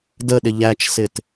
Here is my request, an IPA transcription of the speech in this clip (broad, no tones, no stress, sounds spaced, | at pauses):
d ə ɗ ɪ ʎ æ t͡ʃ s ɪ t